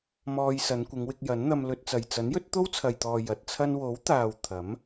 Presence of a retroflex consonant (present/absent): absent